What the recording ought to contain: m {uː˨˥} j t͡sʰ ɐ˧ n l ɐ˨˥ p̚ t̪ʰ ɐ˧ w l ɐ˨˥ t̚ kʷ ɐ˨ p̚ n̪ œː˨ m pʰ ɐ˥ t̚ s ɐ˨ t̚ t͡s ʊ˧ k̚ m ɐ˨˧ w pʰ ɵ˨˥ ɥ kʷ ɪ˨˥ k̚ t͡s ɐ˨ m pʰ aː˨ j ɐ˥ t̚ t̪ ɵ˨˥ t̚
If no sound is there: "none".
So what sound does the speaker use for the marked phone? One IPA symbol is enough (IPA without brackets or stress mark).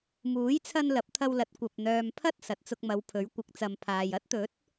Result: uː˨˥